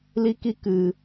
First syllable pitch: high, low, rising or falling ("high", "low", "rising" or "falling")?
high